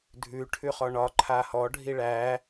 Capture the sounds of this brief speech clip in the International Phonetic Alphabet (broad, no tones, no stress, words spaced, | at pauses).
dʱʉ ʈʰʉχɔɳɒ ǃʰahɔ ɖʱiɭæ